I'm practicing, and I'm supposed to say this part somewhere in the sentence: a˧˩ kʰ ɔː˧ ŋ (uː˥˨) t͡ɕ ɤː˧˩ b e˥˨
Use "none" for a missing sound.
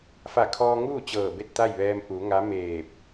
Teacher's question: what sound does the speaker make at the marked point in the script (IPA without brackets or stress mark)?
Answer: uː˥˨